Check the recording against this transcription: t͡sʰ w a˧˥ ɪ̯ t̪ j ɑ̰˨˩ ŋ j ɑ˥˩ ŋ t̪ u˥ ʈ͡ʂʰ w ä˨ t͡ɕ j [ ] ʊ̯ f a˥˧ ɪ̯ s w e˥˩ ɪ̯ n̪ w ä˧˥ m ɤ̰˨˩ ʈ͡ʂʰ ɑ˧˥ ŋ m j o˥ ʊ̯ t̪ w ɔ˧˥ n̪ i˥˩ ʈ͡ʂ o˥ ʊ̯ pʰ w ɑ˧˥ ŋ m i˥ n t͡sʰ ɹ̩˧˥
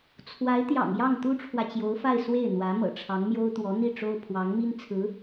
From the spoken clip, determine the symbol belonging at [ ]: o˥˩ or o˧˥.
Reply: o˧˥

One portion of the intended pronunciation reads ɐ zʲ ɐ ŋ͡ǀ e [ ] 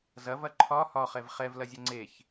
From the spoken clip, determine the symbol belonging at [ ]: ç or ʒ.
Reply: ç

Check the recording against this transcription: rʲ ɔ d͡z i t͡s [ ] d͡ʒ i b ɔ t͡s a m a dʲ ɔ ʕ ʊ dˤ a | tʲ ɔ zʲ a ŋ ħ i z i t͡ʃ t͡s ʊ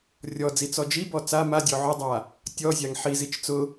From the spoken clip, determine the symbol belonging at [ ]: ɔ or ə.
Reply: ɔ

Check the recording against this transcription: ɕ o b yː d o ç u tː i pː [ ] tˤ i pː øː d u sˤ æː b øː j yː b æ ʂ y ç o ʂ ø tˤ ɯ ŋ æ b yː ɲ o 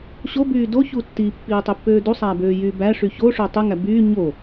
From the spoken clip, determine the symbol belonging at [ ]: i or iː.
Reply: iː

